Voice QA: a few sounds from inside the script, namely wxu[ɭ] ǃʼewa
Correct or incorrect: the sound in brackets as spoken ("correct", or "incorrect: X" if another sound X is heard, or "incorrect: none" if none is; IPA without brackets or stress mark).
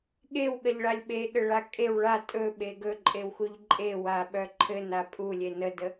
incorrect: ʎ